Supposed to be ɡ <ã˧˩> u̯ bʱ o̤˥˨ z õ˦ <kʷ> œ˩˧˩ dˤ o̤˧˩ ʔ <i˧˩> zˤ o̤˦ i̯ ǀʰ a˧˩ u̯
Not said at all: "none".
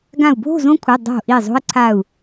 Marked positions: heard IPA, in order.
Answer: ã˧˩, kʷʰ, i˧˩

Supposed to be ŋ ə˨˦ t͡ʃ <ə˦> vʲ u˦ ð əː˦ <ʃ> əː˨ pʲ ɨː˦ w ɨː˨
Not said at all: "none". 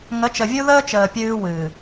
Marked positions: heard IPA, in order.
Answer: ə˨, t͡ʃ

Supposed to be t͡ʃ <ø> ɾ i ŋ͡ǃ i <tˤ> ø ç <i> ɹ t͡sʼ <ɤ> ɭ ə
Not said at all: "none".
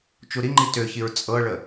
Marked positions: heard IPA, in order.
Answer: u, t, i, ɤ

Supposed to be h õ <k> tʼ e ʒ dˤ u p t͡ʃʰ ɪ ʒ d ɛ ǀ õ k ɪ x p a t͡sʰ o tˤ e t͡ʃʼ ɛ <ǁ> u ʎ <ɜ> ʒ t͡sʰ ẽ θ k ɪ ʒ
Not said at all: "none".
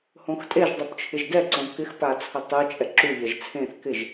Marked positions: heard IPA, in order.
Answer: x, ǁ, ɜ

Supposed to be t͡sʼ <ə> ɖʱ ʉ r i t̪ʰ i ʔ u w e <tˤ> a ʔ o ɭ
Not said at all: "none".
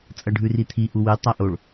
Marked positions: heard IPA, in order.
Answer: ɐ, tˤ

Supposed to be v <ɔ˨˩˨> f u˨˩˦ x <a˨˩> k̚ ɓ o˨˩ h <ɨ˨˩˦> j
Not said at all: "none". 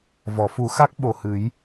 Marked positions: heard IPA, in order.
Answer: ɔ˨˩˨, a˦˥, ɨ˨˩˦

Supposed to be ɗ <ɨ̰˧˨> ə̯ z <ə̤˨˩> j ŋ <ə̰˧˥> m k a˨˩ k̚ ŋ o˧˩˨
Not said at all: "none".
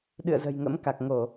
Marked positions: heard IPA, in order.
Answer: ɨ̰˧˨, ə̤˨˩, ə̰˧˥

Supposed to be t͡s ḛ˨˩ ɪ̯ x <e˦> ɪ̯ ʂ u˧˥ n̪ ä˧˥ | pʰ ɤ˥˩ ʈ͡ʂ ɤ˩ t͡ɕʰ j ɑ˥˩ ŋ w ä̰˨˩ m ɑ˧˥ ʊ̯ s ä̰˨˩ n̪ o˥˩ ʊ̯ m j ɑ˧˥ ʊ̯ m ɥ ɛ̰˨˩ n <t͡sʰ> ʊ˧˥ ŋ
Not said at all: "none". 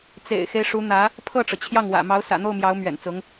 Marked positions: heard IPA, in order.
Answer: e˦, t͡s

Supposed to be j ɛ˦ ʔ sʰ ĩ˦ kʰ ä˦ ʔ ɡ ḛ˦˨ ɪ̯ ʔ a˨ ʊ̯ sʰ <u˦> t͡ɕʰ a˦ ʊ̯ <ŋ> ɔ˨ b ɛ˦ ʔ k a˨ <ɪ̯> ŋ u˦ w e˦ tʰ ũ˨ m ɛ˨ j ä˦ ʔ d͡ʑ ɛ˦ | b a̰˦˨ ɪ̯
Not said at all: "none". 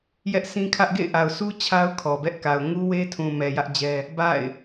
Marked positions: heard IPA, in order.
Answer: u˦, kʰ, ʊ̯

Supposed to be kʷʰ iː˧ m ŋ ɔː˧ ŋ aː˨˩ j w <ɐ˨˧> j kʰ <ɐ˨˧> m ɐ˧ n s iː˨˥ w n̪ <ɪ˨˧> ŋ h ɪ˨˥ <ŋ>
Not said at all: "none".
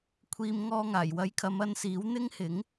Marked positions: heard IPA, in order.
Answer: ɐ˨˥, ɐ˨˧, ɪ˥, ŋ

